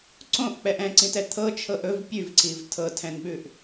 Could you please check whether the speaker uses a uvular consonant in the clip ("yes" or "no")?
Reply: no